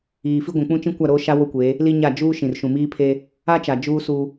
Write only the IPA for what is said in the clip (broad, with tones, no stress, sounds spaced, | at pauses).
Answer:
iː˨ f i˦ ɡʷ ũ˨ k͡p ũ˦ t͡ʃ ĩ˦ kʷ a˦˨ ɾ oː˦ ʃ a˦ w o˦ kʷ eː˨˦ | l i˦ ɲ a˦˨ d͡ʒ uː˦ ʃ ĩ˨ r ʃ ũ˨ m iː˦ pʰ eː˦ | a˦ t͡ʃ a˨ d͡ʒ uː˦ s uː˦